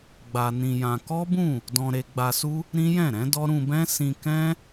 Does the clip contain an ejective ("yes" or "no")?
no